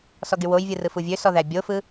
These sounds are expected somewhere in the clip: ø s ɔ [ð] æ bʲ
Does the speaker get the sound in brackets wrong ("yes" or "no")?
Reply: no